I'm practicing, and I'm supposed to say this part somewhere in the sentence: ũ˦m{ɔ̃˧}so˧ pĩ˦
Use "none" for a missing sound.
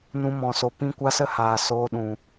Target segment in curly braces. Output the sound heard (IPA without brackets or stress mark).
ɔ̃˧